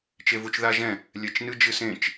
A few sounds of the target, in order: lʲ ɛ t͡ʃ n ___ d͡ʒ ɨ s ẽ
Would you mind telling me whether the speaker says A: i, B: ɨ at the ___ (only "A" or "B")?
B